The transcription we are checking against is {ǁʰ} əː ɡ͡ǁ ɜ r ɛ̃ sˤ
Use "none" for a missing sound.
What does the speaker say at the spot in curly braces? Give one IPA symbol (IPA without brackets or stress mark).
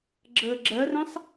ɡ͡ǁ